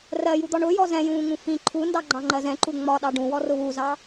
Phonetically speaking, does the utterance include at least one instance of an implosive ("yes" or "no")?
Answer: yes